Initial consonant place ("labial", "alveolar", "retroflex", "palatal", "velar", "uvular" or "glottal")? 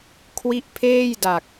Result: velar